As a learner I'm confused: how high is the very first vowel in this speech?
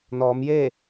mid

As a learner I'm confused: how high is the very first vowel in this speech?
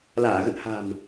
low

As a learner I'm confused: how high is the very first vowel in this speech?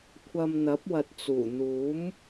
low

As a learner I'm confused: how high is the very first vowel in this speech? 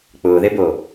high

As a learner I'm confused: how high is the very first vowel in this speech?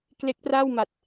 mid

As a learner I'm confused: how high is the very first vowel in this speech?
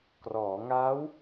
mid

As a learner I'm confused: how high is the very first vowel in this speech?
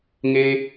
mid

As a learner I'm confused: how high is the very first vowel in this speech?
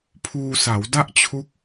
high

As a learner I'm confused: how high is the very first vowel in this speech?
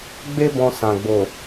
mid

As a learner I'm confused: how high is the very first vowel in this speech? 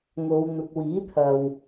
mid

